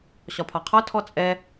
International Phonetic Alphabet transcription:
ɕɒpʰɒqʰɒ tʰɔt͡sʼɛ

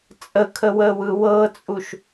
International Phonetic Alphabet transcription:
t͡sʼəkʰəwəːwɯ wɤt͡sʼuʃ

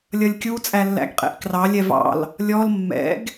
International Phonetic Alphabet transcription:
lʲʌlʲkʲu t͡sʼælːæ̰ɡqʼɛ̰ʔkrɑ lʲɛvɑ̰l | lʲɔl mːɛ̰ɡ

